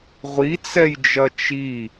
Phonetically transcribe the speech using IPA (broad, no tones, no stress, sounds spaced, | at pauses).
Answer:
ʁʷ i t͡s ɛ j d͡ʒ ɐ t͡ʃ i